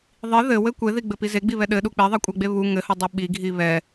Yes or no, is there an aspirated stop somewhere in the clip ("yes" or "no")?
no